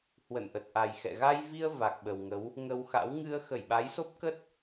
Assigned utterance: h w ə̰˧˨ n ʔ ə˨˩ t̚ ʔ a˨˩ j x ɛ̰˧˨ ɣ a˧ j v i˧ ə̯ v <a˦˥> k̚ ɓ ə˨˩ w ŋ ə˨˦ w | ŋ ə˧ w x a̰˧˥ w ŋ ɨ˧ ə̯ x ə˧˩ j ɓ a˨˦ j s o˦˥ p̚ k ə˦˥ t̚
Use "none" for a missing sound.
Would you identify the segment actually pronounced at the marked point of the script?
a˨˩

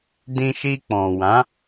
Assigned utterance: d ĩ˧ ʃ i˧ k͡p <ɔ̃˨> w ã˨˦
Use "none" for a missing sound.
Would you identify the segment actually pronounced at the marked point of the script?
ɔ̃˨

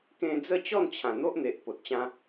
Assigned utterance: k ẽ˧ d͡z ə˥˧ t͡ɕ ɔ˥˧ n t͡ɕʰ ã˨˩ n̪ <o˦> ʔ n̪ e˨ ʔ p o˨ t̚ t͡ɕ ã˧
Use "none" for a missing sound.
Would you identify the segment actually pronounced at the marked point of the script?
o˦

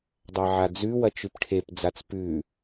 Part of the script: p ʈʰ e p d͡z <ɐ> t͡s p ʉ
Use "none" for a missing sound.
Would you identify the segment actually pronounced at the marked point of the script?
a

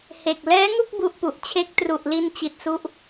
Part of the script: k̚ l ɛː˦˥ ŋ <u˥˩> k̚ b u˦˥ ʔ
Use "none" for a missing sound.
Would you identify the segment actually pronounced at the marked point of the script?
u˥˩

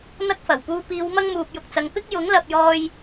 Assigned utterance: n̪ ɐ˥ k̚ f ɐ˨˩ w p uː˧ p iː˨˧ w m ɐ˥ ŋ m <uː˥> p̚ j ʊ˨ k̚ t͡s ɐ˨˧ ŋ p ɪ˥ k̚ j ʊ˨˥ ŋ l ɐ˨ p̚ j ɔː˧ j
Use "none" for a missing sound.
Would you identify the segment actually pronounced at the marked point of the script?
uː˨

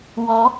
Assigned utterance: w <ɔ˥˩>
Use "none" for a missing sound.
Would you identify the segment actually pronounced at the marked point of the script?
ɔ˧˥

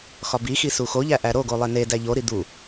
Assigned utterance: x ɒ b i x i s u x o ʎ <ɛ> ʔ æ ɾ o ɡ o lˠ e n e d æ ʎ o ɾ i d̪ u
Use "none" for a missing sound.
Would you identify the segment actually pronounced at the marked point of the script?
æ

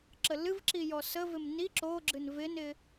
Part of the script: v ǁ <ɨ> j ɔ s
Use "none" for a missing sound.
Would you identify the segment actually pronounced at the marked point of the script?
i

